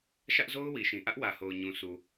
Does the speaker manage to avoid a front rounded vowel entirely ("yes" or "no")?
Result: yes